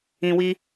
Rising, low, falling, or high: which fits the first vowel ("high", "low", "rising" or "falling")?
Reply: low